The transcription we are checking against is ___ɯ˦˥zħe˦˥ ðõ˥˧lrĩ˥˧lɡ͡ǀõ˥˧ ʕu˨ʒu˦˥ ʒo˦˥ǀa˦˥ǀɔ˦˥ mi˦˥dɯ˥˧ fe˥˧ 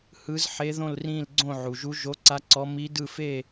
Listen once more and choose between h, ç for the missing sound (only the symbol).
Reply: h